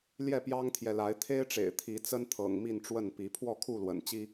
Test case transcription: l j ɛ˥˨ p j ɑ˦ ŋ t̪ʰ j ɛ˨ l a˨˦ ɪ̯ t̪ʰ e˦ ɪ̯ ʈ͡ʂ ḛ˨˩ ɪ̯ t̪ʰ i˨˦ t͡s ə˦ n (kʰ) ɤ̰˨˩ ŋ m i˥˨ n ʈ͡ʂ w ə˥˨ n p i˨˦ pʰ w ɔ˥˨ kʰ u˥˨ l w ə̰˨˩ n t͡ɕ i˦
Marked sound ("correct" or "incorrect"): incorrect